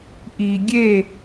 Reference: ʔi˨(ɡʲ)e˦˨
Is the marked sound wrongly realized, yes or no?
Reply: no